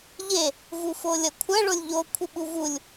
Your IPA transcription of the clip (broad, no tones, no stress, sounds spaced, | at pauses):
ʎ e | v u f o lʲ ɐ kʷʰ ɐ ɭ o lʲ ʎ o kʷʰ ɨ ɓ u v u lʲ